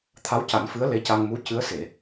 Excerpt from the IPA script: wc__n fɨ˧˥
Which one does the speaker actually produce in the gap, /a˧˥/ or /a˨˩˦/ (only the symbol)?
a˨˩˦